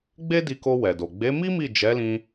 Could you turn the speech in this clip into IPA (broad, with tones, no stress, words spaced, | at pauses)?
ɡ͡be˦di˧ko˧ wɛ˨do˨ ɡ͡be˨˦mi˦ mi˦˨ d͡ʒɛ˨˦lĩ˧